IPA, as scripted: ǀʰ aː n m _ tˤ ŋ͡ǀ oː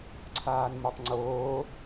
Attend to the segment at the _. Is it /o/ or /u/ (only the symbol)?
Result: o